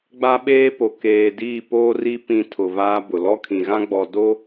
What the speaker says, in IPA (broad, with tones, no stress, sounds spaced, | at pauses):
ɡ͡b a˦ ɓ eː˦ p o˨ k eː˨ d iː˦˨ p oː˦ r i˦ p ĩ˦ tʰ ʊ˨ v aː˦ b ʊ˨ l ɔ˦ kʰ ĩ˨ ɣ ã˦ ɡ͡b ɔ˨ d o˦